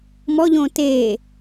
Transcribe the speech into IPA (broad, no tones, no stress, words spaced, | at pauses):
mɔʎõː teː